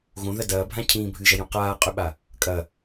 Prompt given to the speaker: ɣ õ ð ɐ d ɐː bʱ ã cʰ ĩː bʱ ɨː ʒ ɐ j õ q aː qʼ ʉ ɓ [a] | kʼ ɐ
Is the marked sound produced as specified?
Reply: yes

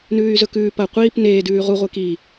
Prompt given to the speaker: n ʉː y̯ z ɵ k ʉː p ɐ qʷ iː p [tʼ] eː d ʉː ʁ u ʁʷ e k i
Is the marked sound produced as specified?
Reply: no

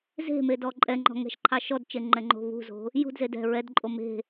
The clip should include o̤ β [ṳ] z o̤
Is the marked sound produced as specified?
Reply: yes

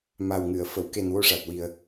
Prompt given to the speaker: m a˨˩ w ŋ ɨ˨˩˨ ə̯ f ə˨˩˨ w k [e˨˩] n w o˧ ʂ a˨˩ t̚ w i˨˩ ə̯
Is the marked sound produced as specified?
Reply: yes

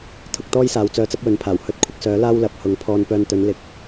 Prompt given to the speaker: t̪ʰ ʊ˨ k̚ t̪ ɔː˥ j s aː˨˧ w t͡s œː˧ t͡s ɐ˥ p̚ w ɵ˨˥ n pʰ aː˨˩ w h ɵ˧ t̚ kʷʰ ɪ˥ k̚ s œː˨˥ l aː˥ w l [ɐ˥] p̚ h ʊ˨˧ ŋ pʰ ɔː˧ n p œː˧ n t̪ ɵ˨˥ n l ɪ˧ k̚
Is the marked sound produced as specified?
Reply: no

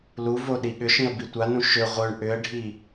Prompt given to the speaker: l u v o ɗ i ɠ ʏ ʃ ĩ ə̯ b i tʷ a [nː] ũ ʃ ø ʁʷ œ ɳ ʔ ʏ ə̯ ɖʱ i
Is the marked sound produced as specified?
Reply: no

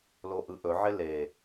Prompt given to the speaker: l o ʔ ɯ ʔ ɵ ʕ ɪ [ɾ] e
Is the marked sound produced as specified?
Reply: no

